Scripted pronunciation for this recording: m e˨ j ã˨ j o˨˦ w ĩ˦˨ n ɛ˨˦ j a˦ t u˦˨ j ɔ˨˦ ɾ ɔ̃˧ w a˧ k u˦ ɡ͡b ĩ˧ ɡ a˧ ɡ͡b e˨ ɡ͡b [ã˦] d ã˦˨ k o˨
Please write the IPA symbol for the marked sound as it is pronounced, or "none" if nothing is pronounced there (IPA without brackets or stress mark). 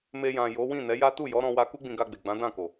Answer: ã˨˦